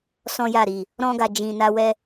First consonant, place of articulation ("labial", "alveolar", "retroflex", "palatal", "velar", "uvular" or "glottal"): alveolar